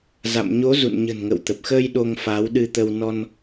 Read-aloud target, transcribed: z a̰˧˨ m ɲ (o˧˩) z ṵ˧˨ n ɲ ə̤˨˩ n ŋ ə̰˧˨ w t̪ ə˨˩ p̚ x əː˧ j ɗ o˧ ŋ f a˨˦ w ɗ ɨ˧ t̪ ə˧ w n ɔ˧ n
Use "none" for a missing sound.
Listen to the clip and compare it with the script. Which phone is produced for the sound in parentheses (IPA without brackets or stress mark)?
o˨˦